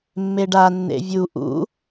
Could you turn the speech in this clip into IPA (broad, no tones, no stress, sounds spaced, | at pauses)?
mː e ɖ a nː ḛ vʲ u ʔ ṵ